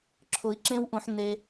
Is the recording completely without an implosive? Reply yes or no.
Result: yes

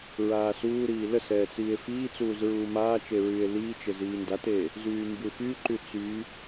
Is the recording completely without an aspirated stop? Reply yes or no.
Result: yes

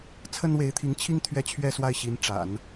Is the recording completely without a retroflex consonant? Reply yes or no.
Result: no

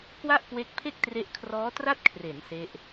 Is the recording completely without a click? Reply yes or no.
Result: yes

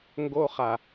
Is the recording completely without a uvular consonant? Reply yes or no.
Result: no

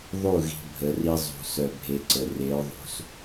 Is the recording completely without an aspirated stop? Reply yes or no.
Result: yes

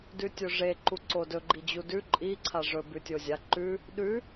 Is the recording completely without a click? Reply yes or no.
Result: no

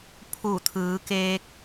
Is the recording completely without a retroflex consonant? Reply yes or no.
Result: yes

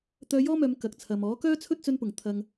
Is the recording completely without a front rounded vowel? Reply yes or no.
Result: no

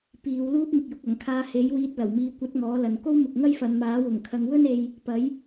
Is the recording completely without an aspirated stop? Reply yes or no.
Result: no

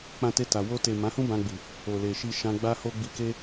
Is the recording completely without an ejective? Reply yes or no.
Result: yes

